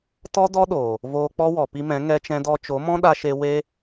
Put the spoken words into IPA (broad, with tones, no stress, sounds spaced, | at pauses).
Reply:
t ɔ˦ d ɔ˦ ɗ oː˨ | v oː˧ k͡p ɔ˦ w ɔ˨ p i˧ m ɛ̃˨˦ ŋ ɛ˦ t͡ʃ ɛ̃˦ d ɔ˦ t͡ʃ o˨˦ m ɔ̃˦ ɗ a˧ ʃ e˧ w e˦